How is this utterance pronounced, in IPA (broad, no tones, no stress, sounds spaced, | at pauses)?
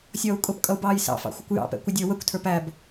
sʲ ʌː u̯ kʼ ʊ p kʼ ʌ u̯ b ɑː j s ɑ̰ f ɑ̰ xʷ ə kʷ j ɑ̰ p ɛ̰ kʷ ɪ dʲ ə˞ w ə kʷ tʰ ə˞ p æ b